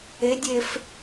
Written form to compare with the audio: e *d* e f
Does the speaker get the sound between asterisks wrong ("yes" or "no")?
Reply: yes